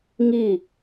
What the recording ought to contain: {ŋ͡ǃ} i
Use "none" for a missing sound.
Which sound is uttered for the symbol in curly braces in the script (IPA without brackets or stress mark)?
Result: ŋ